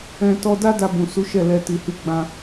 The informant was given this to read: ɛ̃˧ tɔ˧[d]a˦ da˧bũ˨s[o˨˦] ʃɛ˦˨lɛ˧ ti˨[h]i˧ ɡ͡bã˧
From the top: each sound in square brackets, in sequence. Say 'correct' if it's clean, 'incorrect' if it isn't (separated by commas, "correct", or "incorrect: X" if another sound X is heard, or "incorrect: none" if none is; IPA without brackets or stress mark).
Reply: correct, incorrect: u˨˦, correct